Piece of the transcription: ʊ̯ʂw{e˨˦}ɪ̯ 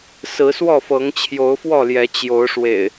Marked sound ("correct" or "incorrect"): incorrect